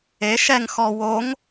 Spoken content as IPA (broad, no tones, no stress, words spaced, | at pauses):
e ʃɛŋ xɔ woŋ